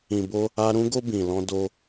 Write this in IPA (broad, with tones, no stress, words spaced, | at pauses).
ĩ˨bo˧ | a˧ ɾũ˧ɡo˧ bĩ˨lɔ̃˧ do˧